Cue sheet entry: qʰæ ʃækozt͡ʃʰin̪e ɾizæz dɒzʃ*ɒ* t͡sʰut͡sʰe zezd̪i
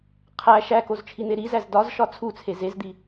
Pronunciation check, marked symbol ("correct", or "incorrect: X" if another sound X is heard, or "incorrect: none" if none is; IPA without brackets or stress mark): correct